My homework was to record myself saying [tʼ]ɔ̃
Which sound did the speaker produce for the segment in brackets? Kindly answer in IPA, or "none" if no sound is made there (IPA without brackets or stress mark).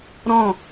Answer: ɾ